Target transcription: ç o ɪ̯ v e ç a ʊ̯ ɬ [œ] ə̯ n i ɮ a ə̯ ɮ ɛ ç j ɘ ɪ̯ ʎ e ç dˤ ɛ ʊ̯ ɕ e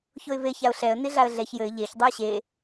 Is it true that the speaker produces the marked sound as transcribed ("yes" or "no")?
no